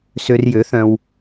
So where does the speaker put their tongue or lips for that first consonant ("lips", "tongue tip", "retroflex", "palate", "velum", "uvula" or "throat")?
tongue tip